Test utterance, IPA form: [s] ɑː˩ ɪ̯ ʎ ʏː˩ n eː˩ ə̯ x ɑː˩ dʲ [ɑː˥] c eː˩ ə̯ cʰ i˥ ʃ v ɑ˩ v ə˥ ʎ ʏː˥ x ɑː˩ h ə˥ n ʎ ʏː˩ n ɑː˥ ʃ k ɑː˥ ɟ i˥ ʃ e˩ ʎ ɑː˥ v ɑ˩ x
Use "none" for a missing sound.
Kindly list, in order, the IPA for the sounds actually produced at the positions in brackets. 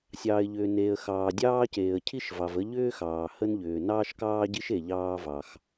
sʲ, ɑː˥

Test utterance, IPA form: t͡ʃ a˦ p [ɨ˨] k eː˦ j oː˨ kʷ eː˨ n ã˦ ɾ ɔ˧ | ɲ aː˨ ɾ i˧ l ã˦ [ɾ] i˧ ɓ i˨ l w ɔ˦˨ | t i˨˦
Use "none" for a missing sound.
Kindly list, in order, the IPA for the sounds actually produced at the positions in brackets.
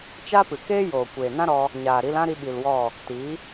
ɨ˨, ɾ

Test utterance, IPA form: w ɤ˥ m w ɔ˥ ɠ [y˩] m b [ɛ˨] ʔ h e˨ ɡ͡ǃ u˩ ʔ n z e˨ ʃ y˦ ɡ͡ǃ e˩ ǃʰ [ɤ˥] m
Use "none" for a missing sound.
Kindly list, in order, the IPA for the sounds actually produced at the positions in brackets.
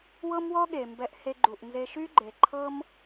e˩, ɛ˨, ɤ˦

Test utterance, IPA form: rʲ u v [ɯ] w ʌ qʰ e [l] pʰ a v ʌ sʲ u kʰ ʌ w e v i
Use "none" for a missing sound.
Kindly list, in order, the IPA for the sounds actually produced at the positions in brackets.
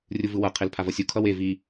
ɯ, l

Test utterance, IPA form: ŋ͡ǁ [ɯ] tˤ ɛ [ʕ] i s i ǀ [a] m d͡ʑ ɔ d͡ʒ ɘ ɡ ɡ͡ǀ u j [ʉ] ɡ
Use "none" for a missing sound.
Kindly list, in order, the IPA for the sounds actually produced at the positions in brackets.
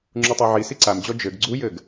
u, ʕ, a, ɘ

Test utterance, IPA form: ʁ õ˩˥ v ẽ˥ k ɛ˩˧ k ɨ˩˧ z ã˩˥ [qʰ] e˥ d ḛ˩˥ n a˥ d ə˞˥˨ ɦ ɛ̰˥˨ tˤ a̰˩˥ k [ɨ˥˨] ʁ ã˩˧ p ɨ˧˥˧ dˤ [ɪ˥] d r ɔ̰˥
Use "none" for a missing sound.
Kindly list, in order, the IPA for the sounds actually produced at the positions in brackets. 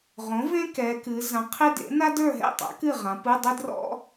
qʰ, ɨ˥˨, ɪ˥

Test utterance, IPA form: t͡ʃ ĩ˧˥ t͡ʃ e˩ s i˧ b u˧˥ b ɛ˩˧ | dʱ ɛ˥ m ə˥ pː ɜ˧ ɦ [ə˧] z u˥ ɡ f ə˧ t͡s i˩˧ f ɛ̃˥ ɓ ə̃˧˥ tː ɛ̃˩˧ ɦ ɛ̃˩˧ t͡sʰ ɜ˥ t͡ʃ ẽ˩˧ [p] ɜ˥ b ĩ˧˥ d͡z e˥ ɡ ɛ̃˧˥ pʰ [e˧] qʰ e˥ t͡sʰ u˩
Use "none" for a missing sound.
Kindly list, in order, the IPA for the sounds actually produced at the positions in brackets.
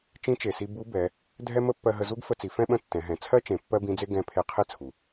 ə˧, pː, e˧

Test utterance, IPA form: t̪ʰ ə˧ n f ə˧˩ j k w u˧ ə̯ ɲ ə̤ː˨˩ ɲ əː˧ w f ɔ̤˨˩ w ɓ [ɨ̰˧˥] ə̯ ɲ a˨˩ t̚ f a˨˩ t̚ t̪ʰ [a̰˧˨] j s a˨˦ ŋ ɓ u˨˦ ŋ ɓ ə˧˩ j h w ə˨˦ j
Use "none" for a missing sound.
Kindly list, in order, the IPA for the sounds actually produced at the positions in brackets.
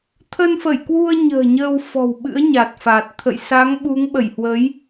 ɨ̰˧˥, ə̰˧˨

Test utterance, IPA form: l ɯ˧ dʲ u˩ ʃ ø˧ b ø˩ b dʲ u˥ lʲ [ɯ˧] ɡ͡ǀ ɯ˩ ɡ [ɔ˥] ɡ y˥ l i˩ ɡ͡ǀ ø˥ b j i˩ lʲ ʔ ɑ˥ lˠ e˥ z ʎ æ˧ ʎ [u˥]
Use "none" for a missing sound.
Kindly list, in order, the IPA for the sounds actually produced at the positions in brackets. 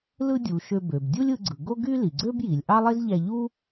ɯ˧, o˥, u˥

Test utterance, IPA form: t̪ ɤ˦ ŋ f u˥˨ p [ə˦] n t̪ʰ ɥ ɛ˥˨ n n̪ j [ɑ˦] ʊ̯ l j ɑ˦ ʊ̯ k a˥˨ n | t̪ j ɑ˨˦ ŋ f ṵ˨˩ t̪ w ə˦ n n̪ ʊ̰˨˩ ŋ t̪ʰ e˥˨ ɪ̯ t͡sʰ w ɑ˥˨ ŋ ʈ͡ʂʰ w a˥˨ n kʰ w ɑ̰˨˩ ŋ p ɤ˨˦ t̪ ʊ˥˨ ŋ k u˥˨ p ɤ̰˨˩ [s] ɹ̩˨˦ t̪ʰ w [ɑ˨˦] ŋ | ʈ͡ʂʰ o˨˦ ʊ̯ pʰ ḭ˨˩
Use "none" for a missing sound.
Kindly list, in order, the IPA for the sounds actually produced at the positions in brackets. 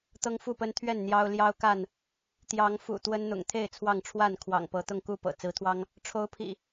ə˦, ɑ˦, t͡s, ɑ˦

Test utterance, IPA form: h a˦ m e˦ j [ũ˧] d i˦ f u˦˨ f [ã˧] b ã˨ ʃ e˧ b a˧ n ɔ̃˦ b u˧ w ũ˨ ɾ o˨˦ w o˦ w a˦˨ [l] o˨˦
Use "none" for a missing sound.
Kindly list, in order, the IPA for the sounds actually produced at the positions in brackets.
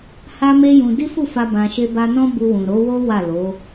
ũ˧, a˧, l

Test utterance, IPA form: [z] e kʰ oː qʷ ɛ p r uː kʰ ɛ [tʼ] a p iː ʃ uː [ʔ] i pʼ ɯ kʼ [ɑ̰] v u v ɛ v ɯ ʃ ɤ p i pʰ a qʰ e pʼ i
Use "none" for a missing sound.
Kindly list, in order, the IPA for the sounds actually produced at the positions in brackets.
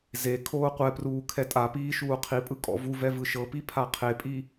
z, tʼ, qʰ, ɔ̰

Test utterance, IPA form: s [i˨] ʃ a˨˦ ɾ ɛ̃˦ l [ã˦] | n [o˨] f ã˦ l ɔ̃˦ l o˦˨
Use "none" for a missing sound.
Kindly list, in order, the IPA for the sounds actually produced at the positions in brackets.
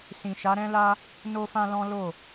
ĩ˨, a˦, o˦

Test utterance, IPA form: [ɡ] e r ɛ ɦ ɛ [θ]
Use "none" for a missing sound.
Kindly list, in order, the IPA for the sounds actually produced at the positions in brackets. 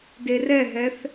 d, θ

